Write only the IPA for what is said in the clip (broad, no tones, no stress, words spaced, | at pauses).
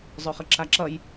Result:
zˤɵχəǁaǁʌj